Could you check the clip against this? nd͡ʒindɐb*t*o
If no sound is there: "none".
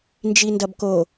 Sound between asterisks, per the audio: k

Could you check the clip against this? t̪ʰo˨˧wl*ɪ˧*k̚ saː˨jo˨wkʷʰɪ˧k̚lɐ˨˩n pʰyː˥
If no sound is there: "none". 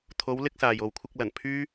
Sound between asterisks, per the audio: ɪ˧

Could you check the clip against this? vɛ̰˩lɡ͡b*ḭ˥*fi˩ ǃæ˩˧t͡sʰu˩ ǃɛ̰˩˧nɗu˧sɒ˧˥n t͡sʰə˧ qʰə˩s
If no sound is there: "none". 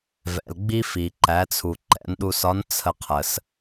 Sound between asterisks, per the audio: i˥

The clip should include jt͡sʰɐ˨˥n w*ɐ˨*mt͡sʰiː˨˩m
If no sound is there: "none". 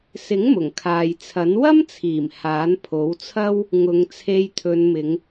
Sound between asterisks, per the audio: ɐ˥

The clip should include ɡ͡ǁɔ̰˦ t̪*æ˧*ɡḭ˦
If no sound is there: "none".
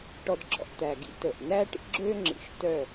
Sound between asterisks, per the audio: æ˨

